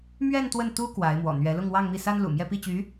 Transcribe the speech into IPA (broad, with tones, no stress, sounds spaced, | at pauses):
m ɥ ɛ˥˧ n t̪ w ə˥˩ n t̪ u˥ k w a˧˥ ɪ̯ m w ɔ̰˨˩ n̪ ɥ ɛ˧˥ l ʊ˥˧ ŋ w ɑ˥˧ ŋ m i˥˩ s a˥ n l ṵ˨˩ m j ɛ˥˧ p i˥˩ t͡ɕ y˧˥